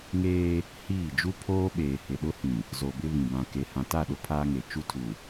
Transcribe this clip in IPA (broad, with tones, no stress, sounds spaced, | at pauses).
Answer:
ŋ eː˦ | h iː˦˨ d͡ʒ u˦ pʰ oː˦ ɓ eː˨ h ɪ˨ ɗ ʊ˦ h ĩ˨ | z o˨ b ɪ˦ β ĩ˨ b ã˨ k e˨ h ã˨ t a˦˨ ɗ ʊ˦ pʰ aː˦ ŋ e˨ t͡ʃ u˦ tʰ u˨